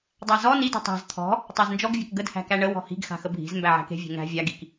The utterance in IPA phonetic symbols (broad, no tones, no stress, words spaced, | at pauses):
dˤæzɔ nidɔ̤ tˤa̤z t̪ʰɔ̤ | tˤaznd͡ʒɔɡvʲa̤k ɡədhæ̤ kæɳə wɔ̤hi̤ɡ xa̤xəbʱi̤z mbæʕæ̤ke̤ vʲe̤ŋæ̤ vʲaɡik